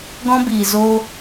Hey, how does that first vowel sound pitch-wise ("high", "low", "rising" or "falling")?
high